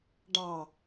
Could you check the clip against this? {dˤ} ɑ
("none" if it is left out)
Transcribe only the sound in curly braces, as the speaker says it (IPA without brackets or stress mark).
ɖ